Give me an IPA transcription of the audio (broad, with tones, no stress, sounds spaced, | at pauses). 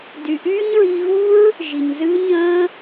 d y˨ ʔ yː˦ ɲ ɹ i˧ ɣ u˦ ɹ | ʒ i˨ ɲ z ɨː˦ ɲ ə̃ː˦